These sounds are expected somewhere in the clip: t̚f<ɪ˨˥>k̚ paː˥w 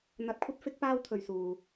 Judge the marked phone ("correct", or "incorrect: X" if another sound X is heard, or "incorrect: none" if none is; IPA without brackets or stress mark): correct